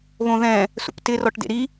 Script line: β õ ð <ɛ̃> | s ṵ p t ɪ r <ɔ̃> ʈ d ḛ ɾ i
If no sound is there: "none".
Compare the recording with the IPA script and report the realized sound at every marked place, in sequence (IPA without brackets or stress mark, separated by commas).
ɛ̃, ɔ